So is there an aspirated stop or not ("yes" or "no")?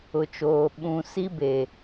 no